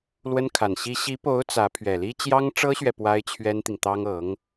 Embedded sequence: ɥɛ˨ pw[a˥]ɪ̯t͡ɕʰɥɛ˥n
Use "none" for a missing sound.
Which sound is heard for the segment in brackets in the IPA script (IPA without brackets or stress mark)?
a˥